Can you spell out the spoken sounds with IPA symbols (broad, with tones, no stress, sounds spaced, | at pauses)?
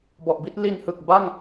b ɔ˨˩ ʔ b i˥˩ t̚ l i˧ n h ɯ˨˩ k̚ b a˥˩ ŋ